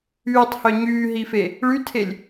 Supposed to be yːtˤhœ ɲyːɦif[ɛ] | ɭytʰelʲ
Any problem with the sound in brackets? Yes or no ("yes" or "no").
yes